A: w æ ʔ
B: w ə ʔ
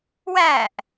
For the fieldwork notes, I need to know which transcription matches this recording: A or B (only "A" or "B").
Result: A